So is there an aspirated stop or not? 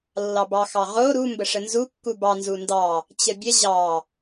no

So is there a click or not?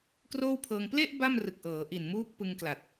no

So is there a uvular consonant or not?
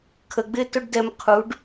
yes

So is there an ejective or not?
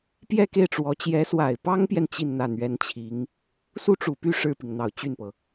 no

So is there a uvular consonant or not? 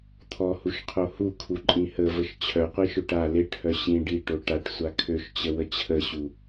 yes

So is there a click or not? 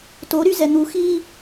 no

